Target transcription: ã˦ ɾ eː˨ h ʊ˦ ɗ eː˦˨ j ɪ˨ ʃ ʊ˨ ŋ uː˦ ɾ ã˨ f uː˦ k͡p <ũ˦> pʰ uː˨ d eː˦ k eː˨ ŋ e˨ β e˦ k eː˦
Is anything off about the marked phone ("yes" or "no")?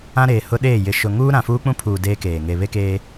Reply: no